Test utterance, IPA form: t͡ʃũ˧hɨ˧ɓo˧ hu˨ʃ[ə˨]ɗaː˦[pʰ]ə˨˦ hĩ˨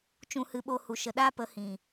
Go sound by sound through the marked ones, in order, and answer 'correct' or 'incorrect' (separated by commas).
correct, incorrect